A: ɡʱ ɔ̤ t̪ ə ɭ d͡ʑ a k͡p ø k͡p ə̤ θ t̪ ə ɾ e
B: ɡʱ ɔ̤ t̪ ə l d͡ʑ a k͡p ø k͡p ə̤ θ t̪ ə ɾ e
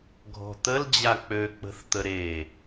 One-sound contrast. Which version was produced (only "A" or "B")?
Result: B